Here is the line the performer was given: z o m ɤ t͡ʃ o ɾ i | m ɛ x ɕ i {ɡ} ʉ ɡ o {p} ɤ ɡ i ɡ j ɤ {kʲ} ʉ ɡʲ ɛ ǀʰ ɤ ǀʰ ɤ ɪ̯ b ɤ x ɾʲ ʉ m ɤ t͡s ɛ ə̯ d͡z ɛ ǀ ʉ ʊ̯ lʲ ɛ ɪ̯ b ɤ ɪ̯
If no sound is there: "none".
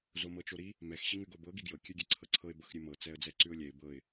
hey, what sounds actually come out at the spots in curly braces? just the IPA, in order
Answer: ŋ, b, kʲ

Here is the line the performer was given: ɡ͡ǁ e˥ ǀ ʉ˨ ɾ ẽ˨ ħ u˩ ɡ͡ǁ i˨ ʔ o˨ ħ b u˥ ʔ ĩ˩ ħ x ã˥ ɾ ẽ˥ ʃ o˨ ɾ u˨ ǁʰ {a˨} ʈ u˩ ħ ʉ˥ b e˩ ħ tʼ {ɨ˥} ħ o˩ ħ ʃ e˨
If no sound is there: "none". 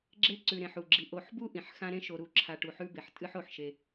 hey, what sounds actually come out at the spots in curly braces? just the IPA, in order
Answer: a˨, ɨ˥

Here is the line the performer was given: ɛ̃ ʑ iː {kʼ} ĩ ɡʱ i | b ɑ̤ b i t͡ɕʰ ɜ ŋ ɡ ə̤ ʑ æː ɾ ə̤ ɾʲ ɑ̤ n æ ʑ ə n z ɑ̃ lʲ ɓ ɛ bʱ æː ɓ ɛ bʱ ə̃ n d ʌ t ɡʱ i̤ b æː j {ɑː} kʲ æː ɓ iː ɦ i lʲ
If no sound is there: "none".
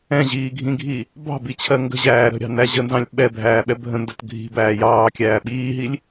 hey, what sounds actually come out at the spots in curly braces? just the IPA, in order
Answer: ɡʱ, ɑː

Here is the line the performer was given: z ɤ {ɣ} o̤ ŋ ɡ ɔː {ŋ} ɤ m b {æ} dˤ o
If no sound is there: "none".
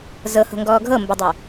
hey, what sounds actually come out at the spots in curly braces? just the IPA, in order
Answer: h, ɡʱ, ə

